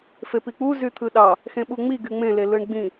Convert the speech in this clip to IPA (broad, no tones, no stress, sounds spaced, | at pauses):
f e p i k͡p u z y t̪ʰ ɯ ɗ ɑ | x ẽ ɓ u ŋ͡m i ɡ y ŋ͡m ẽ l e l ɯ ɳ ɡ͡b ĩ